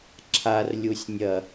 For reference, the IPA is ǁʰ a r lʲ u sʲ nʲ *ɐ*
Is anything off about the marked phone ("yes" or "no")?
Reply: no